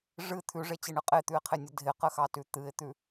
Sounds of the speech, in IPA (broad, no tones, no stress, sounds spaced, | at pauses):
ʐ ɨ t̪ʰ ʉ ʐ e t͡ɕ e ɳ ɨ qʼ e t̪ ʉ ɪ̯ qʰ e nʲ ə dʱ ɪ q ə x ɑ t ʉ t̪ ɨ ɪ̯ t̪ ʉ